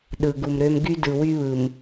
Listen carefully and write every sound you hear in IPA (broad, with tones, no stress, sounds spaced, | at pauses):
ɗ ɯ˨ ɡ u˨ m ɾ ø˦ m ɡ y˦ d ɯ˨ w y˦ β ɯ˨ m